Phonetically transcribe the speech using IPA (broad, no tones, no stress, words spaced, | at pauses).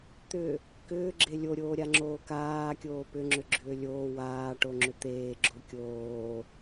t̪ʏ | kʏːɡ͡ǁe lʲoɾʲoːɾʲaŋ͡ǁoː kaːkʲoː pʏŋ͡ǁʏɡ͡ǁʏː lʲoː waːʈoŋ͡ǁʏ t̪eːɡ͡ǁo kʲoː